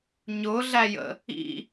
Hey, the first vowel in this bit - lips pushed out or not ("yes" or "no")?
yes